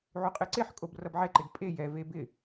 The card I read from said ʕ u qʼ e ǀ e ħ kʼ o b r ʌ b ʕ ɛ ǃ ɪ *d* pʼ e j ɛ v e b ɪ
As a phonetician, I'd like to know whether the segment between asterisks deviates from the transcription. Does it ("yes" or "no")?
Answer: no